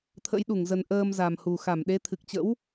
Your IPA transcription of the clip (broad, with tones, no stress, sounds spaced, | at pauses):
t̪ʰ ə̰˧˥ j ɗ u˧˩ ŋ z ə˨˩ n ʔ əː˧ m z a˨˩ m h u˨˩ x a˧˩ m ɗ e˨˦ t̪ʰ ɨ˨˩ k̚ t͡ɕ ə̰˧˥ w